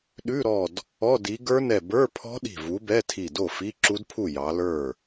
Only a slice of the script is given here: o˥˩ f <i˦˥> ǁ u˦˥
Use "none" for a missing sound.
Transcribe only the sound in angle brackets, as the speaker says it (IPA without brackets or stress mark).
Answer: i˧˥˧